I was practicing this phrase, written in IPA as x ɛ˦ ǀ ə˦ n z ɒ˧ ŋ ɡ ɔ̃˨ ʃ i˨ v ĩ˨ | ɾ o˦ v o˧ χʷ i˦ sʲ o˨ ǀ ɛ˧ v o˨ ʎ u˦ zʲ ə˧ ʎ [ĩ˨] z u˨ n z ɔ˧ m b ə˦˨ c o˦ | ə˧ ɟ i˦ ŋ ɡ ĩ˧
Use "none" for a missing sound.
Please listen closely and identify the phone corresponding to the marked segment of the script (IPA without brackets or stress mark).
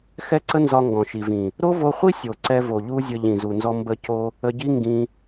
ĩ˨